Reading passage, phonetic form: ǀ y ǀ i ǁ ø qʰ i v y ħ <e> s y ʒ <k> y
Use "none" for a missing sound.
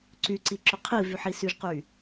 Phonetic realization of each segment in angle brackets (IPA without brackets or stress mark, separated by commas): i, q